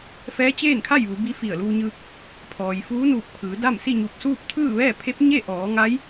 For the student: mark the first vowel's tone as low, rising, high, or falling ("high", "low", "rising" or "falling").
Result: rising